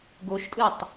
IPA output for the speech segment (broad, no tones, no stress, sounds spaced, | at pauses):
ɡ o ʃ tʼ ɯ tˤ